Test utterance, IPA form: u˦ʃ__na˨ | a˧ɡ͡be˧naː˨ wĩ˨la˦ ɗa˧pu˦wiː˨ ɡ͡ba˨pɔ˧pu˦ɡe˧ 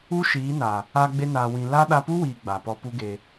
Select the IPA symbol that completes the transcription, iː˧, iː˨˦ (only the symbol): iː˨˦